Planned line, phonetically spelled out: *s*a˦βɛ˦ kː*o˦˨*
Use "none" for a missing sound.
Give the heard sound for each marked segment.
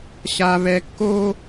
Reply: ɕ, o˦

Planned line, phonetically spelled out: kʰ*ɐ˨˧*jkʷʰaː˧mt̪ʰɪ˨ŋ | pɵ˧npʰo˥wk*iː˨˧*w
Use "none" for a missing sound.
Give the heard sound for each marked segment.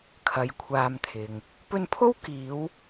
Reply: ɐ˨˧, iː˨˧

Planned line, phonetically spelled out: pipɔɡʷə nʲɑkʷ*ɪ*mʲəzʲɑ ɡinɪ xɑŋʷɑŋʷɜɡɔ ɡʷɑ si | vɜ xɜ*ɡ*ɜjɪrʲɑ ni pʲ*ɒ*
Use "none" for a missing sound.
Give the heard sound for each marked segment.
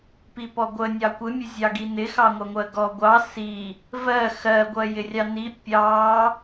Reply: ɪ, ɡʷ, ɑ

